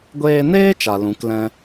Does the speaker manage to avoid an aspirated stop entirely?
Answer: yes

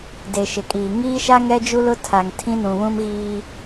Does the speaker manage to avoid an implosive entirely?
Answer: yes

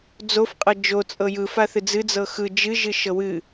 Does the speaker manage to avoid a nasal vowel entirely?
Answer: yes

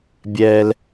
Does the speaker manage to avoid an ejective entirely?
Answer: yes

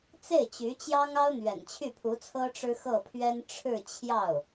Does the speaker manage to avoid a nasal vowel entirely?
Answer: yes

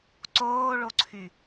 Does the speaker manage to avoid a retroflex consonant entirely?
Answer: no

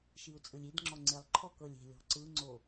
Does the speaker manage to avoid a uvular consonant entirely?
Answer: yes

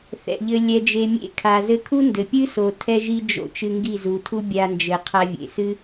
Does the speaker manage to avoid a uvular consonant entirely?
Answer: no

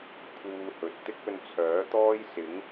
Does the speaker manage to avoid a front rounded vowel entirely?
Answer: no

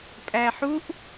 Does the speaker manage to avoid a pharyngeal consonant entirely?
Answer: no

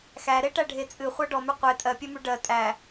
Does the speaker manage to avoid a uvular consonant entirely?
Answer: no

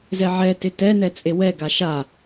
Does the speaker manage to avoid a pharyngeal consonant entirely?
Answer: no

